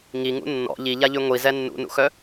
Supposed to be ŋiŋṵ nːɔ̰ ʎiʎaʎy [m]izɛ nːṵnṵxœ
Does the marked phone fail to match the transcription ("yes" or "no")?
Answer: yes